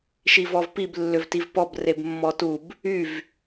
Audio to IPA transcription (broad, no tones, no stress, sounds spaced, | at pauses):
ʃ i v ɔ v p i b lː ʏ v t i v p ɔ b r e b mː ɔ t u b | y v